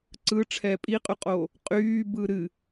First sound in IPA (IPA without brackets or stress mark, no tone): ǀ